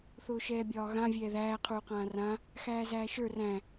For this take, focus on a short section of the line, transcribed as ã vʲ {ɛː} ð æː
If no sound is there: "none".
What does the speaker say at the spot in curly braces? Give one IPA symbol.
ɛː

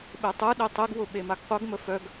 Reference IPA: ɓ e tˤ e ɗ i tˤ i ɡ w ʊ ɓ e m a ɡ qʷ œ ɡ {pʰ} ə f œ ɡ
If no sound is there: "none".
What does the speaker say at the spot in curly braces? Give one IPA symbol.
m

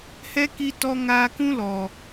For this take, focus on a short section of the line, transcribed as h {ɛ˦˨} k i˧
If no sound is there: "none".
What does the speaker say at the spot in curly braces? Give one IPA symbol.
ɛ˦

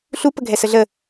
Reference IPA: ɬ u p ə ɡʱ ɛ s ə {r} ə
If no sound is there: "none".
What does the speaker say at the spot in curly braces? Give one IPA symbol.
ɮ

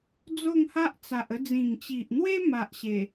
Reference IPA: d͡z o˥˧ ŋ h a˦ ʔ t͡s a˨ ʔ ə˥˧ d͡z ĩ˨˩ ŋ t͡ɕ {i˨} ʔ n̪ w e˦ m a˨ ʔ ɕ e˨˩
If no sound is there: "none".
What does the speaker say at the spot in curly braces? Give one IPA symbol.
i˨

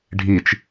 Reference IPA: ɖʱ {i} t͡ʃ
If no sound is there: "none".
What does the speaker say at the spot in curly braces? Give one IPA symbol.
i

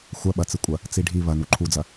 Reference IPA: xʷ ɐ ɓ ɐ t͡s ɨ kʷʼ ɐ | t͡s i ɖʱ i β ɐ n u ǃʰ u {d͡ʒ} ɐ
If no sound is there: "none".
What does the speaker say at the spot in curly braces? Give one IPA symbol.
d͡z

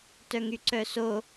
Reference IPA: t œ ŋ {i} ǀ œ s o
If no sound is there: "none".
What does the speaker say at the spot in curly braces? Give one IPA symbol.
y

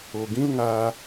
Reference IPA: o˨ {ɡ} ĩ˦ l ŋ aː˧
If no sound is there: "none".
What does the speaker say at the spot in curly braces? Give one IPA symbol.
ɡ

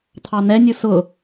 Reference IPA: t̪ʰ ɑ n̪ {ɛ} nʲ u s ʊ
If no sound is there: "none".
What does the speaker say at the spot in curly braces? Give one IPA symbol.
ɛ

